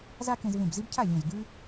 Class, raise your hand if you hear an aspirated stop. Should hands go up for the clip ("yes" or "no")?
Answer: yes